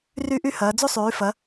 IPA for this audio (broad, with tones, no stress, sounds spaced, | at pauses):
r y˥ ʔ y˥ h ɐː˨˦ d͡z y˥ sˤ yː˨˦ f ɐ˨˦